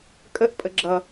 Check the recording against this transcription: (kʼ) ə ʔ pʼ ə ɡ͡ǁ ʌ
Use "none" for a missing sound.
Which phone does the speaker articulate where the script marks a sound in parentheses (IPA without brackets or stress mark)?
kʼ